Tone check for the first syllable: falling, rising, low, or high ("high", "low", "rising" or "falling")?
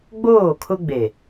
falling